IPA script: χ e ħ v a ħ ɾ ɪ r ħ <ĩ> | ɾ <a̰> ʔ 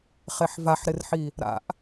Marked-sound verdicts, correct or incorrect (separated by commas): incorrect, correct